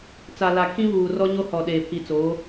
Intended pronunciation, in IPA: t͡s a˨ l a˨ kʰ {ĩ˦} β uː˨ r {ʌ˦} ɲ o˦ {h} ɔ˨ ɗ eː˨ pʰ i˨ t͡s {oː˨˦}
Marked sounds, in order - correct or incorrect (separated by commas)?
correct, incorrect, correct, correct